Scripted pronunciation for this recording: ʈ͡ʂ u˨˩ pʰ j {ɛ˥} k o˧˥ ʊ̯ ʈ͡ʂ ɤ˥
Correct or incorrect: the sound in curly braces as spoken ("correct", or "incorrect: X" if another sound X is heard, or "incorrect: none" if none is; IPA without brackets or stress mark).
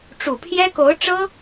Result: correct